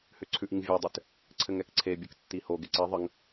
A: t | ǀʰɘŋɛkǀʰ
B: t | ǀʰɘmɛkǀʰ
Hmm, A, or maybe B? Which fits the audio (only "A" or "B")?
A